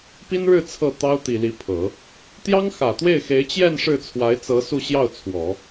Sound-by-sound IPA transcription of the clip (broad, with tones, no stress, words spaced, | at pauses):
pi˥nɻɻ̩˥˧ t͡sʰɤ˥˩t̪ɑ˥ʊ̯t̪i˨˩ li˧˥pʰɤ˨˩˦ | t̪jɑ˥ŋxä˨˩ t̪we˥˩ɪ̯xe˧˥ɪ̯t͡ɕjɛ˥˧n ʂɻ̩˥˩t͡sʰwa˧˥ɪ̯t͡sɤ˧˥ su˥˧ɕjɑ˥˩ʊ̯t͡sʰwɔ˨˩˦